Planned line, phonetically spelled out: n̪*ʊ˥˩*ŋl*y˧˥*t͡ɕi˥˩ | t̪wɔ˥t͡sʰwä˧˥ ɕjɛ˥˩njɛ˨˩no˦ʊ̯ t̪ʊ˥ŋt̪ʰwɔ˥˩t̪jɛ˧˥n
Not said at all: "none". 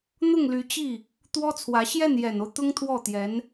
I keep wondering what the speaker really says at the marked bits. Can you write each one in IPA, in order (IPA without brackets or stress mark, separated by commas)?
ʊ˥˩, y˧˥